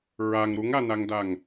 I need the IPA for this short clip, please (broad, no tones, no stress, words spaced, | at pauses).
ɹaŋ ɾuŋanaŋdaŋ